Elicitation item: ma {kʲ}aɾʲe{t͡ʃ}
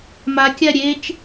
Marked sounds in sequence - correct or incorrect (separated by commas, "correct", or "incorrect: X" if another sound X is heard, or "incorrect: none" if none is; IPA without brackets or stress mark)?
correct, correct